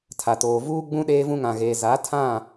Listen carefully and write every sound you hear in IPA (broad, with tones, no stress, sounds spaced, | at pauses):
tʰ a˨ t oː˨ v uː˦ ɡ͡b ũ˦ ɗ eː˦ v ũ˦ ŋ ã˨ ɣ eː˨ z a˨˦ tʰ ã˦˨